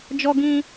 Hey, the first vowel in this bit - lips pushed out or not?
yes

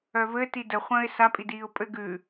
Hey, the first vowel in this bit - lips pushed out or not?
yes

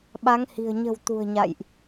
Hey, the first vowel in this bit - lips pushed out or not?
no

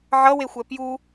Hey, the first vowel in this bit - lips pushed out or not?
no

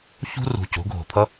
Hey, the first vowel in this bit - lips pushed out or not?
yes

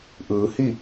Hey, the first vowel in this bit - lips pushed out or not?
no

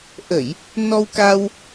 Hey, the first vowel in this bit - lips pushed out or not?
no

